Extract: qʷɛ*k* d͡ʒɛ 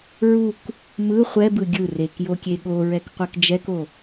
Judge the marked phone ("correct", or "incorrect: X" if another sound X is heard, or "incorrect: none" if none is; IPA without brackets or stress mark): correct